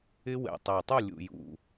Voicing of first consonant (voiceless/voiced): voiced